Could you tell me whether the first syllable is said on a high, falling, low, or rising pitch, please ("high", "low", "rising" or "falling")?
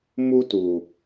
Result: high